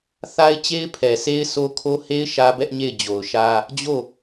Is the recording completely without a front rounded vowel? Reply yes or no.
yes